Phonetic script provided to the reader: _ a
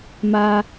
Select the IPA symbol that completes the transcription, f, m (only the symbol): m